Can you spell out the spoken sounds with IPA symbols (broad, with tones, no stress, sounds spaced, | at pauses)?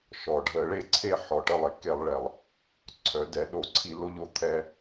ʃ ɔ˩ ɖʱ ə˧˩˧ ɭ e˥˩ ǀʰ e˥˩ ħ ɔ˩ ʈ ə˥˩ lˠ e˩ k e˧˩˧ lˠ ɭ ɛ˩ lˠ | ǀʰ œ˩˧ d ɛ˩˧ ɗ o˧˩˧ ǀʰ i˧˩˧ l o˧ ʎ o˩ t̪ʰ ɛ˧